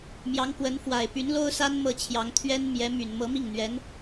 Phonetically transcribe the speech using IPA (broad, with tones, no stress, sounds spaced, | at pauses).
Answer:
m j ɑ˧˥ ŋ k w ə˧˥ n f w a˨˩ ɪ̯ p y˧˥ n l o˥ ʊ̯ s a˥ n m ɤ˥˩ t͡ɕʰ j ɑ˧˥ ŋ t̪ʰ ɥ ɛ˥ n m j ɛ˧˥ m y˨˩ n m ɤ˧˥ m i˥˩ ŋ n̪ ɥ ɛ˧˥ n